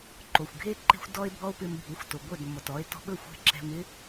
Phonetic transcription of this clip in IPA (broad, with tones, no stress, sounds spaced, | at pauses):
ǃ o˩ xʷ ɡʱ e˥ ǃ e̤˥ xʷ d ɔ˥ e̯ bʱ ɔ˥ o̯ p ɪ˧ m bʱ u˩˥ xʷ t o˩ ɡʷ œ˥˩ d mː ɔ˩ t ɔ˩˥ e̯ t ɔ̤˧ ɓ ɵ˥˩ xʷ ɛ̤˥˩ ǁ ɛ̤˧ m ɪ˥